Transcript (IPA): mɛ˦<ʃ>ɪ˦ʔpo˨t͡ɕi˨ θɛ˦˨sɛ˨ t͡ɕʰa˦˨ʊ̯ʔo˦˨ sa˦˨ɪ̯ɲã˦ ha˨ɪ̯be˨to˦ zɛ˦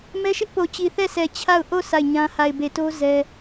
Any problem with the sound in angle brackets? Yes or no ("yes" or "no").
no